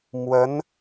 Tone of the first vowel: rising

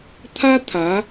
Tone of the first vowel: high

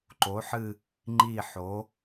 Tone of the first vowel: rising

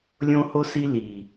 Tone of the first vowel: high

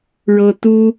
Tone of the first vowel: high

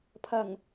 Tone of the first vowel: low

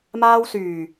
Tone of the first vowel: high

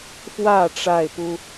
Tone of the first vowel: falling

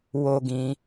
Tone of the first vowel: high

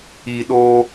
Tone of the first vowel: low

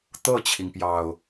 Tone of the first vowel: falling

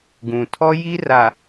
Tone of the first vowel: low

